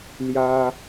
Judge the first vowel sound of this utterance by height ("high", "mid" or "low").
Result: low